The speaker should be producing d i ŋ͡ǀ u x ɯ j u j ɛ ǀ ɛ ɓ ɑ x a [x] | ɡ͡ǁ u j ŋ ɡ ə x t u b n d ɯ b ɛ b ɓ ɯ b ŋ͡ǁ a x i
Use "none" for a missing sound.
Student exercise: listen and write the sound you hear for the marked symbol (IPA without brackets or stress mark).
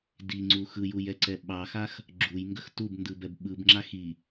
x